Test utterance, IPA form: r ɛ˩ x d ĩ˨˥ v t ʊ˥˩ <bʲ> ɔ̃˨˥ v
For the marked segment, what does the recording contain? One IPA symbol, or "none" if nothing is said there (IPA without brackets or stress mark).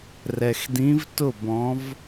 b